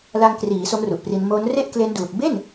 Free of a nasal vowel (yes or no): yes